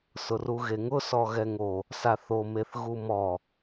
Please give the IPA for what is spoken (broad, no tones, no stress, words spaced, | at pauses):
sʊruɣeŋʊ sɔɣɛŋo | saθo meθɣumɔ